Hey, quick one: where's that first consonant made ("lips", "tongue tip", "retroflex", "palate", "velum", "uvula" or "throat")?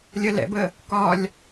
tongue tip